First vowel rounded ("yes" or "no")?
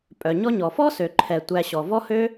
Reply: yes